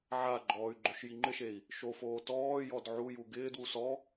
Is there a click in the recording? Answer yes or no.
yes